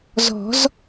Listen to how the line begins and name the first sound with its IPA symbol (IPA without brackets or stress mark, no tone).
z